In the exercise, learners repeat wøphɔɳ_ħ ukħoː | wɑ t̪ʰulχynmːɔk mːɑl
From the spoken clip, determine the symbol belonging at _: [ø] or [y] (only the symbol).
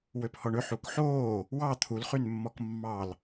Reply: ø